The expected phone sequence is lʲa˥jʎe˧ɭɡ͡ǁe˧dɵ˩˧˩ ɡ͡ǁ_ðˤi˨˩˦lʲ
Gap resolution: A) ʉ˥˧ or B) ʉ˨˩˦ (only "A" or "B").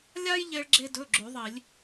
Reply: B